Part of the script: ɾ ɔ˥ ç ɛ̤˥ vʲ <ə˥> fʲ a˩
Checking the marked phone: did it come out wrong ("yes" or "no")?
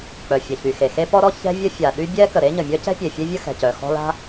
no